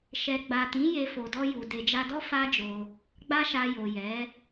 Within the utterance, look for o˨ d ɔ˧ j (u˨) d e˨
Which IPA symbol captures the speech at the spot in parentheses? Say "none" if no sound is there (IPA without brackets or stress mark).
u˨